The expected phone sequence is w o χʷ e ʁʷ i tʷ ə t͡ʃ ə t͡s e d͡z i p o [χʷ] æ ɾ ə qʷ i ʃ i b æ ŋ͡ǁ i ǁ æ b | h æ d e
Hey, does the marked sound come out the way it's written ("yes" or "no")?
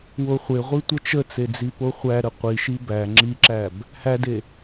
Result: yes